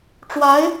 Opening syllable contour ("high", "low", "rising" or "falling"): rising